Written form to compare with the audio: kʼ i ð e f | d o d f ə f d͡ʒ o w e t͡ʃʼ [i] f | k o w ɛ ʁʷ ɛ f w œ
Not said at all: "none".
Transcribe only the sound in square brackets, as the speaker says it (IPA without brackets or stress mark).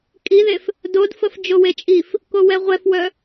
i